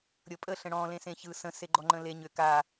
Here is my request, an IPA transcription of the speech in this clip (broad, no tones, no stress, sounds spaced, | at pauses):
ɾʲ ɤ pʼ ə ɬ ə̃ ɽ ɔ̃ l ẽ s ẽ ç ɯ s ə̃ s e ɡ͡ǃ ɔ ŋ͡ǃ ə̃ l e ɲ ʏ k a